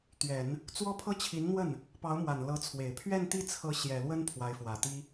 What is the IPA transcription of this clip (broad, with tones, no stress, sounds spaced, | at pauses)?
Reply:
t̪ ɥ ɛ˨˩˦ n | t͡s w ɔ˥ pʰ ɤ˥ t͡ɕʰ i˧˥ n n̪ w ə˥˩ n | p ɑ˧˥ ʊ̯ m w a˨˩ n l ɤ˧˥ t͡sʰ w e˨˩ ɪ̯ pʰ ɥ ɛ˥˧ n t̪ i˥˩ t͡sʰ ɤ˧˥ ɕ j ɛ˨˩ l w ə˥ n pʰ w a˧˥ ɪ̯ f w ä˨˩ t̪ i˥